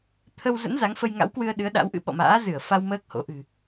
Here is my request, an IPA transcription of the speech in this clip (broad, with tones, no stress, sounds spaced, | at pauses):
t̪ʰ ə˧ w z ə̰˧˥ n z a˨˦ ŋ f ə˧ j ŋ a̰˧˥ w k w ɨ˧ ə̯ ɗ ɨ˨˦ ə̯ ɗ a̰˧˥ w ʔ ɨ̰˧˥ ɓ ɔ̰˧˨ m a̰ː˧˥ z ɨ˧˩ ə̯ f a˧ w m əː˦˥ k̚ h o̰˧˥ ʔ ɨ̤˨˩